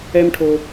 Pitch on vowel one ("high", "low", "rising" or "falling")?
high